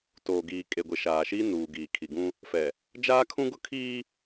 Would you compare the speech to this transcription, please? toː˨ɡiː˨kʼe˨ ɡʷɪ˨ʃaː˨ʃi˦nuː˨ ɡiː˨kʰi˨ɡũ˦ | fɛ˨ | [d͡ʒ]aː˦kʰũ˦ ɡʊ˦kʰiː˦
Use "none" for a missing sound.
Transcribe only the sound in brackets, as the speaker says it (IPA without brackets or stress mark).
d͡ʒ